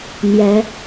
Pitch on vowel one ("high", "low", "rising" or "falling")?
rising